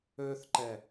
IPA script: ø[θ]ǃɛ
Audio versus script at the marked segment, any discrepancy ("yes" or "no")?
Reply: no